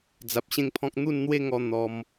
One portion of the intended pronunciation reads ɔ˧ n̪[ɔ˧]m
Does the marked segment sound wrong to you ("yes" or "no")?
no